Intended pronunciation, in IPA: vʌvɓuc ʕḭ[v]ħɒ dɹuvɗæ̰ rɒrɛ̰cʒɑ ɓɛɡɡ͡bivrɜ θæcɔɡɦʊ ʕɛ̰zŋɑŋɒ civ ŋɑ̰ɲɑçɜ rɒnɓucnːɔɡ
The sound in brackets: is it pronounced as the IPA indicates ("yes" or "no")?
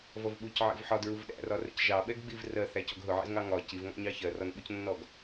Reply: yes